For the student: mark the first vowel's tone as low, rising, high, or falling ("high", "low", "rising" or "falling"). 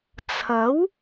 rising